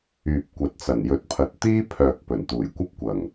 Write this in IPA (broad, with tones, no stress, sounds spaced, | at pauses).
yː˨ p̚ kʷ ɐ˨ t̚ t͡s ɐ˨˩ n j ɵ˨˥ t̚ pʰ ɐ˨ t̚ t̪ iː˥ pʰ œː˨ k̚ p ɵ˨˩ n t̪ uː˨˩ j kʷ ɐ˥ p̚ kʷ ɐ˨˩ ŋ